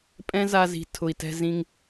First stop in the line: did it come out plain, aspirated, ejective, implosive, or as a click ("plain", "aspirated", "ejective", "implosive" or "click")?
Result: ejective